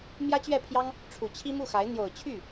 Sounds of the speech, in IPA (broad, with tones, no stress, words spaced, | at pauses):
mjä˥t͡ɕɥɛ˥˩pʰjɑ˥ŋ | ʈ͡ʂʰu˨˩t͡ɕʰi˥mu˥˩xa˧˥ɪ̯ n̪jo˨˩ʊ̯t͡ɕʰy˥˩